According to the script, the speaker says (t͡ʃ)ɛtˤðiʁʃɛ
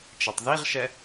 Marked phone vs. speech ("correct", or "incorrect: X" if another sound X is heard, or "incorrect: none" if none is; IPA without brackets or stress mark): correct